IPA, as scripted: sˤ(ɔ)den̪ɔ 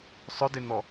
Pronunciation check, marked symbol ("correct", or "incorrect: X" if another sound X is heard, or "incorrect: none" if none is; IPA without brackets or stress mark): incorrect: ʊ